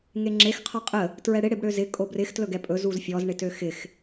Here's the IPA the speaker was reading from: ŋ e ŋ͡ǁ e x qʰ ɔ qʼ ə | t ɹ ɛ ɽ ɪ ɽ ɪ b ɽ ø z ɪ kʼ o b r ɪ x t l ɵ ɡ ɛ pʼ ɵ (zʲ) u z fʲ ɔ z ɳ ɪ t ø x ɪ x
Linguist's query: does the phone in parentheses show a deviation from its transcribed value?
yes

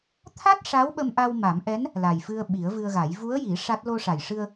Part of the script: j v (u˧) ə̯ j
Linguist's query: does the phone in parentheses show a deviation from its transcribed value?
yes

